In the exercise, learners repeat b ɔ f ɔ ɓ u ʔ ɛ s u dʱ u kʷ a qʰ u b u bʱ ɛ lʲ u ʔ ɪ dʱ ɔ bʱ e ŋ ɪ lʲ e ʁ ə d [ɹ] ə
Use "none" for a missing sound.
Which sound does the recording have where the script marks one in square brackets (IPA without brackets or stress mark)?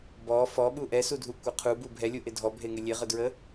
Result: ɹ